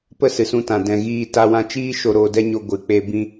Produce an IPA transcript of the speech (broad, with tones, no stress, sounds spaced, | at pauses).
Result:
p ə˦ s ɨ˨ s ũ˧ t ã˨ d ɛ̃˨ ɣ iː˧ t a˦ w ã˦ t͡ʃ iː˦ ʃ o˧ ɾ oː˧ d ɛ˦ ɲ o˧ ɡʷ ɨ˨ k͡p e˦ b ĩ˦